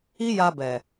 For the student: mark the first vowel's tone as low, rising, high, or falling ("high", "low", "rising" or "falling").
high